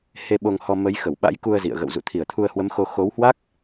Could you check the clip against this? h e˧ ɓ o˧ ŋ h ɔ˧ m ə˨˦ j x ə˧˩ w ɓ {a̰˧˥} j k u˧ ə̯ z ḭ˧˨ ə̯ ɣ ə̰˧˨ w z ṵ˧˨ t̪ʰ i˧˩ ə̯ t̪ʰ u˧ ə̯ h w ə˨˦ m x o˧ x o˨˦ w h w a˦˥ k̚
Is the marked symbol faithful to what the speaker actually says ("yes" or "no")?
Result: yes